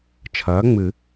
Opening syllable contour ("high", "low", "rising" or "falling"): rising